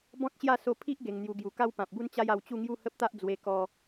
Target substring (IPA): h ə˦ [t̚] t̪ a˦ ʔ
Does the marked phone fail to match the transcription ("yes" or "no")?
yes